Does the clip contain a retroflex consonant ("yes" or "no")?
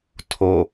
no